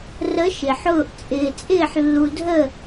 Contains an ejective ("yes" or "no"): yes